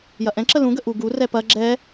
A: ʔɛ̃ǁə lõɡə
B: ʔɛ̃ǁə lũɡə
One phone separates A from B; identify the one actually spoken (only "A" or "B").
B